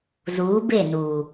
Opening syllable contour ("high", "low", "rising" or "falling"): rising